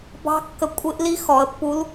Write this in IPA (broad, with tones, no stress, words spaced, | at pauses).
bɑ̤˧˥ kːə˧ kʷʼɪ˧˥ʔ li˥xɔ˩˧ə̯pːu˧˥l